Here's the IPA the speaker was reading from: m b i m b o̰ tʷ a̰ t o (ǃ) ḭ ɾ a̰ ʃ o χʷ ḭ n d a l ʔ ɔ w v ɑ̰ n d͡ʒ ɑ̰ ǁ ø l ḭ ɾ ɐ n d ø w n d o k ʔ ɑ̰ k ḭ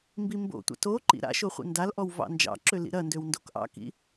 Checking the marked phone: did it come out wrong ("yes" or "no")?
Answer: no